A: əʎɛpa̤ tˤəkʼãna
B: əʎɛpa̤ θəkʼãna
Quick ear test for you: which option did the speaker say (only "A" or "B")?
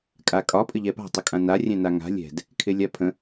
A